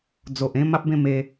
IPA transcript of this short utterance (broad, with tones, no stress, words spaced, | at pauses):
d͡zo˨ʔẽ˥˧ ma˦p̚bẽ˥˧me˦